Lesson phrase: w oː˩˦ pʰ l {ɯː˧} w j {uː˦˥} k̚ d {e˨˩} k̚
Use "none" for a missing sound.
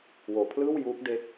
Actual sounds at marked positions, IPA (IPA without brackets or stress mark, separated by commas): ɯː˥˩, uː˦˥, e˦˥